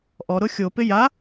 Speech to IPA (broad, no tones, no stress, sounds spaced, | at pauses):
ʔ ɔ ɾ ʊ xʲ o p ɪ j a